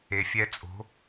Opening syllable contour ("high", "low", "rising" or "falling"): low